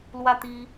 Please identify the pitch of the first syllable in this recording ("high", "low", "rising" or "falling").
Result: high